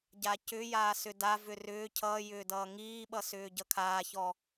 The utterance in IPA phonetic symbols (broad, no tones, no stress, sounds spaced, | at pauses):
ɟ a c ʏ j aː s ʏ d a v ʏ r ʏː cʰ ʌː j ʏː d ʌː ŋ iː ɓ ʌ s ʏː ɟ ʌ kʰ aː ç ɔ